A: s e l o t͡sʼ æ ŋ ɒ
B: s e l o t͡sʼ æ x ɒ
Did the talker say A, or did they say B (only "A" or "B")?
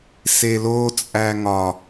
A